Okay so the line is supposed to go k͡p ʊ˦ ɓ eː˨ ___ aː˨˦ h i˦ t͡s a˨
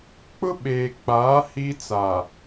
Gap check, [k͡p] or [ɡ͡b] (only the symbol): k͡p